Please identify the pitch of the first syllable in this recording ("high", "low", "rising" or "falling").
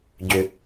low